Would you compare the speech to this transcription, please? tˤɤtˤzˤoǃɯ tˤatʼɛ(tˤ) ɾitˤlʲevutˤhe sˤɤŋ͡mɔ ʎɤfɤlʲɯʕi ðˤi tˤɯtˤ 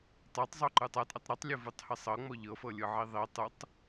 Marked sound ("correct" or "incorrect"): correct